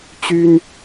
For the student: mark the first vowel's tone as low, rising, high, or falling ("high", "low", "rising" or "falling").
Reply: high